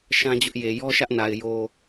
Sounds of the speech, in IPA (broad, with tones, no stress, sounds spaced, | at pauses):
ʃ ã˦ d͡ʑ ʊ˦ ʔ j e˨ j ɔ˦ ʃ ä˦ ʔ n a˨ ɪ̯ j o˨